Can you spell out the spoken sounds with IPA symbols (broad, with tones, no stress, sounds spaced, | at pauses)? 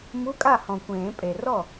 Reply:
m u˧˥˧ kʼ a˥˩ h ɔ̃˨ kʷ ẽː˨˩˦ pʼ e˨ r ɔ˥˩